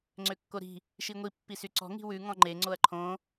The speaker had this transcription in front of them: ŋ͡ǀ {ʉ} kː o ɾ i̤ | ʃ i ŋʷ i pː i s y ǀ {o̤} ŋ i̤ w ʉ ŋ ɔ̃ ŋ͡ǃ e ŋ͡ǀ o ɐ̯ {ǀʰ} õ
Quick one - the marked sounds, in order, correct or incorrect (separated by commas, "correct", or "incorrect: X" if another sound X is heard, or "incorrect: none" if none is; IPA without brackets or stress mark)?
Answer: incorrect: ø, incorrect: ɔ̤, incorrect: ǃʰ